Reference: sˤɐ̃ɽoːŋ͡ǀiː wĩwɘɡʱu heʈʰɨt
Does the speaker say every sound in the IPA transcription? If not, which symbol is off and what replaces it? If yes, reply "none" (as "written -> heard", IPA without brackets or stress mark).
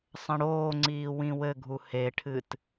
none